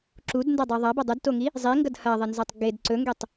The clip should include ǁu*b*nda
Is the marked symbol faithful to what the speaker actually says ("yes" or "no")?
no